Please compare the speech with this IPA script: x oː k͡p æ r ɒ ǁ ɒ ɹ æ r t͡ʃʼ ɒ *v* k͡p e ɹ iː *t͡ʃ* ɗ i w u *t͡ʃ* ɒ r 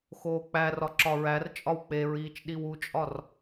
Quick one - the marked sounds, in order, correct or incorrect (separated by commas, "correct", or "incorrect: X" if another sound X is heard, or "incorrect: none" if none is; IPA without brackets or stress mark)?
incorrect: w, correct, incorrect: t͡ʃʼ